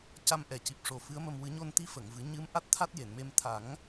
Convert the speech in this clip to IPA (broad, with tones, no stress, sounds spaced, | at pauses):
c a˧ m ʔ ɛ˨˩ c i˨˩ p̚ ʂ o˨˩ f ɨ˧˥ ə̯ m ə˧ m w ɨ˨˩˦ ɲ o˧ n t̪ i˧˥ f ə˨˩˨ ŋ v ɨ˨˩˦ ɲ ɨ˧˥ m ʔ a˦˥ t̚ t̪ʰ a˦˥ t̚ j e˨˩˨ n m e˧ m t̪ʰ a˨˩˦ ŋ